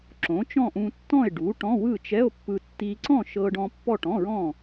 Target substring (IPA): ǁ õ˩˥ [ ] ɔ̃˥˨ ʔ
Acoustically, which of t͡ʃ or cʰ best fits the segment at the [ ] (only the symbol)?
t͡ʃ